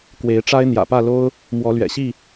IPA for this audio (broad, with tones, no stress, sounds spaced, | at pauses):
k w e˨˦ ɪ̯ ʈ͡ʂ a˦ ɪ̯ n̪ j ä̰˨˩ p ä˥˨ l o˦ ʊ̯ | m w ɔ˨˦ l ɥ ɛ̰˨˩ ɕ i˥˨